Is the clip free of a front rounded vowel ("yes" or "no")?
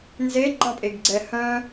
no